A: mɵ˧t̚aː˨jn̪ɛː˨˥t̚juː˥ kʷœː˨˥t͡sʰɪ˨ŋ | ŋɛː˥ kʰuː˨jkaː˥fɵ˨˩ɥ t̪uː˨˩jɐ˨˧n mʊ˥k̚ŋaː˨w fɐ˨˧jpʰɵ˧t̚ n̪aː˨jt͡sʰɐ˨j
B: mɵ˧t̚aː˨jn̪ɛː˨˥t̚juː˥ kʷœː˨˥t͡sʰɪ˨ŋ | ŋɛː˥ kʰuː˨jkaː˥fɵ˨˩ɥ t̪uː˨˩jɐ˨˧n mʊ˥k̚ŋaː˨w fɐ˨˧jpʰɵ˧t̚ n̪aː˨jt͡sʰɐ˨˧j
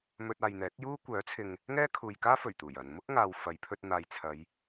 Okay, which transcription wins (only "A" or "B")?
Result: B